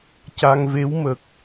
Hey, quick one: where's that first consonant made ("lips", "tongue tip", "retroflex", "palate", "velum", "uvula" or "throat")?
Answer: palate